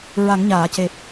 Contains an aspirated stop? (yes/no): no